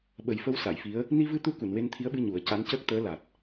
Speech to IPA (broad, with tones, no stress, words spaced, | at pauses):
ɓə˨˩jfə˧w sa˨˩˨jfi˧˥ə̯ | ni˧vɨ˧t̪u˧ ku˨˩˨nwe˧nt̪ʰi˧˥ə̯ɓɨ˧ ɲu˨˩˦ə̯ ca˧˥ncəː˦˥k̚ t̪əː˧˥la˨˩t̚